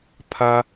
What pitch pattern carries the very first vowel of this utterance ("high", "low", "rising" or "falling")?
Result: high